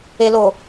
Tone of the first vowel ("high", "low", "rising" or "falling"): low